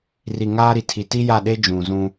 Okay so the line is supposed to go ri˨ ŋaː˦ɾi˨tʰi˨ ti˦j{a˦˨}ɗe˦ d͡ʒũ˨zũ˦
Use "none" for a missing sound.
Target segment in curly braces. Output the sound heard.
a˦˨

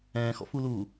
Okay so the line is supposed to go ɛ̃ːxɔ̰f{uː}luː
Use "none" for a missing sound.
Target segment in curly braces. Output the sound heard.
u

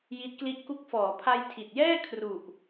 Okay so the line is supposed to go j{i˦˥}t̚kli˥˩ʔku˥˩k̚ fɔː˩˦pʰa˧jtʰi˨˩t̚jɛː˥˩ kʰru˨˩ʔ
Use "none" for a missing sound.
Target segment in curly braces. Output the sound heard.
i˦˥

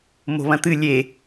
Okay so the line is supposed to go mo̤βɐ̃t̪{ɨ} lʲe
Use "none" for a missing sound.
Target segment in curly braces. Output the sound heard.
ɨ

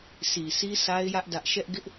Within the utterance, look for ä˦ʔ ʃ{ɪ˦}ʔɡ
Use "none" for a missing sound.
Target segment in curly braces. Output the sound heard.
ɛ˦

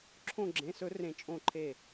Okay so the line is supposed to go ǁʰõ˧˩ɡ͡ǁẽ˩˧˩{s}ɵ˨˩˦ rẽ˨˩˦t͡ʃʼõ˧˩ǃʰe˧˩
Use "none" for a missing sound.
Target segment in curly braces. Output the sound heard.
s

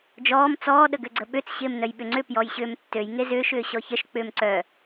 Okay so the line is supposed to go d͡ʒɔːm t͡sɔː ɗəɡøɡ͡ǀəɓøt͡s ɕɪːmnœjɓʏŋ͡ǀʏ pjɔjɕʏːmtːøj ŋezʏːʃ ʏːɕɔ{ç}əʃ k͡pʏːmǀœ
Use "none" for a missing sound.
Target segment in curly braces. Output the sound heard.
ç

